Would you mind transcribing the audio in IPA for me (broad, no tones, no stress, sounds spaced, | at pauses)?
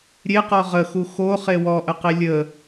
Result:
ɾʲ e q ɔ ʁ ə x u x o χ e w ɔ ʔ ə q e lʲ ə